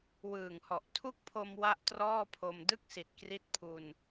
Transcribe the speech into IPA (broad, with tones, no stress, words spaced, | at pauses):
wɯː˨˩ŋhɔ˨˩ʔ tʰu˥˩k̚pʰo˧m wa˥˩ʔtrɔː˥˩pʰo˧m dɯ˥˩k̚si˨˩t̚kri˦˥t̚ pʰu˧n